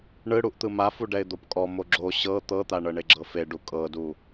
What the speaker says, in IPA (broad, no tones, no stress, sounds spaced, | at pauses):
ɳ ɯ ɽ u ʔ t̪ ɯ m a f u ɖ ɛ ɪ̯ d̪ o p kʼ ɔ m o ɡ͡ǁ o ɕ ɤ t̪ ɤ t̪ a ɳ ɤ ɳ e ɡ͡ǁ ɤ f e ɖ u kʼ ɤ d u